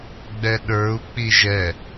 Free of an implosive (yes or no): no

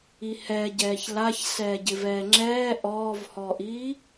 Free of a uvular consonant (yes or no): yes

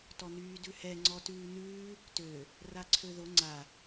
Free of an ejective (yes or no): yes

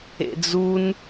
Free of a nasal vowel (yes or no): yes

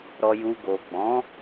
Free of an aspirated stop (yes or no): yes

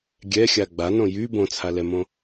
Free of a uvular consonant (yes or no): yes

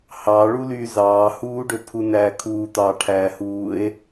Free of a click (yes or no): yes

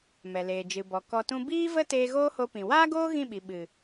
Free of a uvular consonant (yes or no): yes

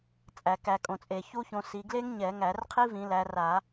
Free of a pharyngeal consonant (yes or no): yes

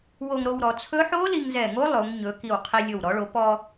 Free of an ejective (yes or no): yes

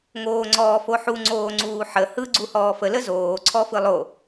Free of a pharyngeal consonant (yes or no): no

